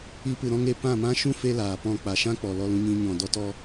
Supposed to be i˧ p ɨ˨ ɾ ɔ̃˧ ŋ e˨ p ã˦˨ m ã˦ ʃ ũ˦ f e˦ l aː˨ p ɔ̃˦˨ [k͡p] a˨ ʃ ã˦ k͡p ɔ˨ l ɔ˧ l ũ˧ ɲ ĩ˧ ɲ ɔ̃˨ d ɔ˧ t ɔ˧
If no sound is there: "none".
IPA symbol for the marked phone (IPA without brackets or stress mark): k͡p